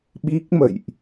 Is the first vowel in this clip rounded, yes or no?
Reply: no